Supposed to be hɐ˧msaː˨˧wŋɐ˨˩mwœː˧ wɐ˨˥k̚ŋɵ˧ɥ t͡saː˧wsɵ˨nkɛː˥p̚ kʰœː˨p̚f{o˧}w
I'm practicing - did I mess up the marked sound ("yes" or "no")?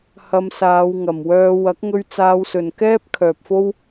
yes